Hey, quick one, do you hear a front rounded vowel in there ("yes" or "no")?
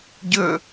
no